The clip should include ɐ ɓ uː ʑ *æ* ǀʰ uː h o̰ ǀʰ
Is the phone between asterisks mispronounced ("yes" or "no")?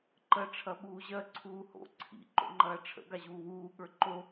yes